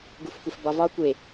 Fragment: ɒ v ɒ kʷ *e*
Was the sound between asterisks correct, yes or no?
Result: yes